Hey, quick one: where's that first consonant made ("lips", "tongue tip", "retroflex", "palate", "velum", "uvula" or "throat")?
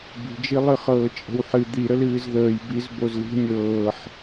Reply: lips